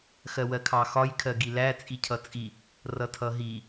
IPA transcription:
x ɜ w ɜ kʰ ɑ x ɒ j kʰ ɜ ɡ i l æ t͡sʼ i cʰ ʌ t͡sʼ i | r ʌ tʰ ʌ ɦ i

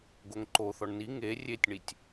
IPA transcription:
ɡ o ŋ ǃ o θ ɔ ɳ n i ŋ e rʲ e tʲ ɳ i tʲ

